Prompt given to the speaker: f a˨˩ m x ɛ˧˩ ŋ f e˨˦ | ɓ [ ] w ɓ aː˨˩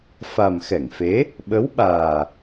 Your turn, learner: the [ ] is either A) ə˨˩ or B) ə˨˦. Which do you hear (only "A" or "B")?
B